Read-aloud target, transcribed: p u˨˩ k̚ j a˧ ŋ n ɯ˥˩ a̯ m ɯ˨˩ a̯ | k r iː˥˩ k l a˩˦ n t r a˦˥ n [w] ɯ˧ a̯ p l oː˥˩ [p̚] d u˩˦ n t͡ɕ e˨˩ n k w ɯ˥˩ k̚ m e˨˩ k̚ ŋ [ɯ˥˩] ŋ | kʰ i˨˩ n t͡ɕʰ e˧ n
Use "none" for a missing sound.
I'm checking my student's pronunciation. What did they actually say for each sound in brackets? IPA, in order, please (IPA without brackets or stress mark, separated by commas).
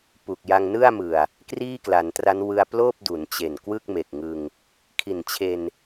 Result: w, p̚, ɯ˧